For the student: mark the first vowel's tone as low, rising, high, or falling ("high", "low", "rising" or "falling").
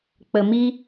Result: low